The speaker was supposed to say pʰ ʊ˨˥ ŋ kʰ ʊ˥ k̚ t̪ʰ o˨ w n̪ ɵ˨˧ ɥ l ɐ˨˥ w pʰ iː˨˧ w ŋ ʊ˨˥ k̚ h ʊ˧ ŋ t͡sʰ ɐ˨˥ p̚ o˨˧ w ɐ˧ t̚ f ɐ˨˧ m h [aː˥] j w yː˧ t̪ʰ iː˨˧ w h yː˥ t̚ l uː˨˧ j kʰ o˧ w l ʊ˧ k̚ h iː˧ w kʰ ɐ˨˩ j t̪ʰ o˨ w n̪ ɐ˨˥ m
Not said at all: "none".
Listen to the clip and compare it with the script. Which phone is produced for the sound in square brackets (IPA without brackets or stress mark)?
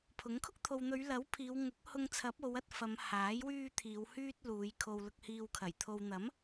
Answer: aː˨˥